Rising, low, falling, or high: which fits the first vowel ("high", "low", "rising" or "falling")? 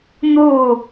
falling